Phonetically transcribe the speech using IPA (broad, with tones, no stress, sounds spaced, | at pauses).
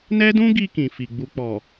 n ɛ˦ d ũ˦ ɡ i˧ k ĩ˨ f i˨ ɡ͡b u˨ k͡p ɔ˨